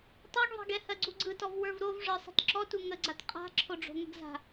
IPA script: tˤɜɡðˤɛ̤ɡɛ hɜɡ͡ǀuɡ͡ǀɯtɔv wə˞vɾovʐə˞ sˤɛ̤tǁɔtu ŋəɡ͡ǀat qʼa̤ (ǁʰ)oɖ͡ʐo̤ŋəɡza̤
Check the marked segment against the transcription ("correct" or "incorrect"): correct